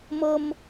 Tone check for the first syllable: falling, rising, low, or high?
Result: high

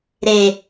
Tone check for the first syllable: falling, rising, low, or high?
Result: low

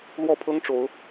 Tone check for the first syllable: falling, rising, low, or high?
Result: falling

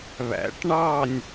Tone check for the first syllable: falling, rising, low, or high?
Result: rising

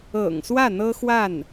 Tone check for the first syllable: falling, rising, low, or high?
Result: low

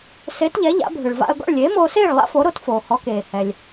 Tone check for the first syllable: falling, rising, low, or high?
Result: rising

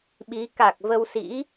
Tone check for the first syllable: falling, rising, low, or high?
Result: rising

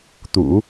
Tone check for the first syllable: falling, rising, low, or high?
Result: low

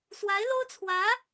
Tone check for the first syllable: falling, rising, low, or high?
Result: rising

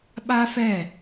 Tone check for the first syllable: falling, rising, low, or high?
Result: high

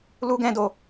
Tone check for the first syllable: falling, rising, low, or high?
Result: high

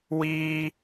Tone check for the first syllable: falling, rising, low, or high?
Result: high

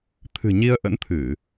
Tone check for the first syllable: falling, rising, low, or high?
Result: low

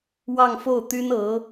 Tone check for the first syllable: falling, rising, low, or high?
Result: falling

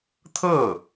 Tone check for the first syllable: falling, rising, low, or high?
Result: falling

